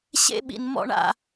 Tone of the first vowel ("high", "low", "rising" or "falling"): high